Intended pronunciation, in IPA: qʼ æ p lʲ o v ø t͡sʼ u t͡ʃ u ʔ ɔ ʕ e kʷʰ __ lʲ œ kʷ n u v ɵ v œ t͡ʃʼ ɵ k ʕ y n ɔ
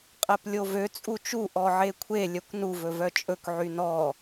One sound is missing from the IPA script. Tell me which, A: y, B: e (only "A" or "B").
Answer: B